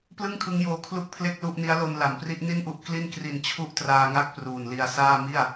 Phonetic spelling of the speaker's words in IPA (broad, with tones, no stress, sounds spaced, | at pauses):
p l ɯ˥˩ ŋ kʰ ɯ˦˥ ŋ j oː˧ kʰ l u˥˩ k̚ pʰ l e˥˩ k̚ l u˥˩ ʔ n i˦˥ a̯ l o˧ n l a˩˦ m p r i˦˥ ʔ n i˥˩ n ʔ u˦˥ ʔ k l i˥˩ n k r i˧ n t͡ɕʰ u˥˩ ʔ t r aː˧ ŋ a˥˩ k̚ p r uː˨˩ n l i˧ a̯ s aː˥˩ m i˥˩ a̯